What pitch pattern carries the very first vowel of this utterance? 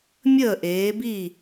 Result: falling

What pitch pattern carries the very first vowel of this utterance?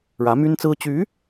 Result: rising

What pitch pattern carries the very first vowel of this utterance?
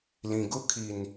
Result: low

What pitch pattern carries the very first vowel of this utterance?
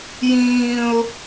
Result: high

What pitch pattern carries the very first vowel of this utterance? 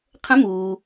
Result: rising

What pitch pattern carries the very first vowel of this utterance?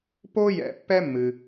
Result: high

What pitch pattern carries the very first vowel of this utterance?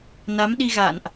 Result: rising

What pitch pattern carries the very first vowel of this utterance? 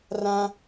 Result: high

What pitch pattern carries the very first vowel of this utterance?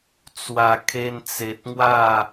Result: low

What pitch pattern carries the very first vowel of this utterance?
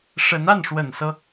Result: rising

